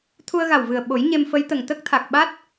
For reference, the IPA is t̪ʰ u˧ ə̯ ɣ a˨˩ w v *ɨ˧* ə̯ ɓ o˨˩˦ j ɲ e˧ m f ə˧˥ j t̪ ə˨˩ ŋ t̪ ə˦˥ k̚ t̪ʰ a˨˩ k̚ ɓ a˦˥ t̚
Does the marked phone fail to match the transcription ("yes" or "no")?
yes